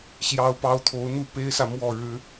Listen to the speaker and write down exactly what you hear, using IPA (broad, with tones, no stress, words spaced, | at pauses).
ɕjɑ˨˦ʊ̯pɑ˨˦ʊ̯t̪ʰo˨˦ʊ̯n̪u˥˨ pe˦ɪ̯sä˨ mwɔ˥˨ɻɻ̩˦